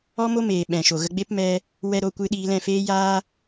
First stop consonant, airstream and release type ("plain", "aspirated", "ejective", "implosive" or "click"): implosive